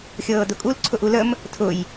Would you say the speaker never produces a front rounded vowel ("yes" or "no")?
yes